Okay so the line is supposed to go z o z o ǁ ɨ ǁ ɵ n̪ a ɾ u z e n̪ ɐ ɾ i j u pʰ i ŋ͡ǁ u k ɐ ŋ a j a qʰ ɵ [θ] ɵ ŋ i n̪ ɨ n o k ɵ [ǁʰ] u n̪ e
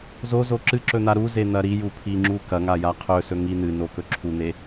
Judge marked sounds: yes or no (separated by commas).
no, yes